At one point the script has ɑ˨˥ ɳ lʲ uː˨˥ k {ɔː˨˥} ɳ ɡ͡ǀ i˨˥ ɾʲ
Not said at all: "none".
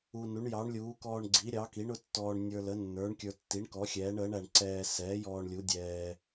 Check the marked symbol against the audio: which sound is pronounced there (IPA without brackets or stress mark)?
ɔː˧